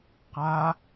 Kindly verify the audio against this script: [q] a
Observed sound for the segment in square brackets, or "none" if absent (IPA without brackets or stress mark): q